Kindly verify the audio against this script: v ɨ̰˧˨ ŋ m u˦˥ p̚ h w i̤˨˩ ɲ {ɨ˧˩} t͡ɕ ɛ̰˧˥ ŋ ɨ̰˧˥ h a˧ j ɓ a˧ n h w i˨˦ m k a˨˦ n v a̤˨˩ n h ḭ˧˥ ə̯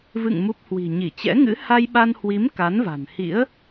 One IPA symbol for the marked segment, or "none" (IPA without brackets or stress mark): i˧˩